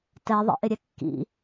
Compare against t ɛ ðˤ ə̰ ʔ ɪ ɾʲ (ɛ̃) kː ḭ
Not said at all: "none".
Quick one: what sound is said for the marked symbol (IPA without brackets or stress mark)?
ɛ